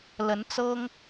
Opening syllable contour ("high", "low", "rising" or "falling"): rising